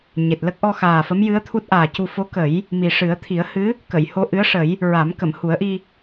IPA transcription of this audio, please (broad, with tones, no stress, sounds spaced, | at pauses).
ɲ e˨˩ t̚ l ə˦˥ k̚ ʔ ɔ˧ x aː˨˩ f ə˧˥ m j ɨ˧˥ ə̯ t̪ʰ u˦˥ t̚ ʔ aː˨˩ c u˧ f o˧˥ k ə˨˩˦ j | m i˨˩ ʂ ɨ˨˩˦ ə̯ t̪ʰ i˨˩˦ ə̯ h ɨ˧˥ | k ə˨˩˨ j h o˧ ʔ ɨ˧˥ ə̯ ʂ ə˨˩˦ j | ɹ a˨˩˦ m k ə˨˩˨ m h u˨˩˦ ə̯ ʔ i˧